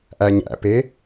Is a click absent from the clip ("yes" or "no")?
yes